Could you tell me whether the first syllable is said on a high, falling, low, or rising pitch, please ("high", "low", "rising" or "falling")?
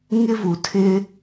high